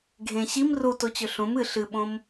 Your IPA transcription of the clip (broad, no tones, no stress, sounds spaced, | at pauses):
ɡʱ ẽ ɕ i m r u t o t͡ɕ ɵ ɬ ũ m ɨ ɬ ɨ ɓ õ m